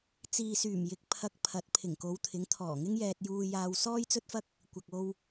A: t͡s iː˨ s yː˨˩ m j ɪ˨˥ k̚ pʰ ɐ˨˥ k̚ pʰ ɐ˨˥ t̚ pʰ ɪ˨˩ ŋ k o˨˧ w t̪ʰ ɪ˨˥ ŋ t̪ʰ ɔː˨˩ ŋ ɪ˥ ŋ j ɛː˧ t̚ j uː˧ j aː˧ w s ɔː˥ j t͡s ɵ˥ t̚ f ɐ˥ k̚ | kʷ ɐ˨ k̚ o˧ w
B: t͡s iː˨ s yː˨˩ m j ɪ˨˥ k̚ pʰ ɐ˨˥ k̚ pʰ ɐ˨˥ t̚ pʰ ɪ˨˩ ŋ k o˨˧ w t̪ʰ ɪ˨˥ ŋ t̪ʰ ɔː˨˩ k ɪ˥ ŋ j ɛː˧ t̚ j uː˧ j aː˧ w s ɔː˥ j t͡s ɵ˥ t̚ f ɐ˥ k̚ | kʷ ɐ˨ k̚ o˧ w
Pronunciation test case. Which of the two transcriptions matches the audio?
A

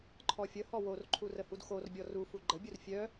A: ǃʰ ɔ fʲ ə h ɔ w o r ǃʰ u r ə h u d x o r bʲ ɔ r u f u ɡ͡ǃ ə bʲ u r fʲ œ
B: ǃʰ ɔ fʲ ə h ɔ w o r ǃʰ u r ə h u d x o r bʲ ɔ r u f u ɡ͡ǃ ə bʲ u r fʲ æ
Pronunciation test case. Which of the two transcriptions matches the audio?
A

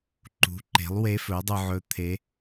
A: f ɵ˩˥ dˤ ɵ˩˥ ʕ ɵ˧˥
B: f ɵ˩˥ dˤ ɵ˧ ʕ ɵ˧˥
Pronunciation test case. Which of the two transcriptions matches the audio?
B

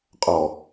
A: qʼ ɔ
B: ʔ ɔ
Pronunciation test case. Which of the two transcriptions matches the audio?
A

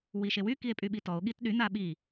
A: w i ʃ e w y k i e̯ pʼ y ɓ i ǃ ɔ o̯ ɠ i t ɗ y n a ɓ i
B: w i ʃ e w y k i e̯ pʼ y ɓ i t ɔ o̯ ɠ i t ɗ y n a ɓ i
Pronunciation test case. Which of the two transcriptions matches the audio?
B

